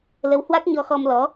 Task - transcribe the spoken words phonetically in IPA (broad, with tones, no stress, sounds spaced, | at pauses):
l ə˨˦ w h w a˦˥ k̚ ɲ ɔ˧ x ɔ˧ m l ɔ˨˦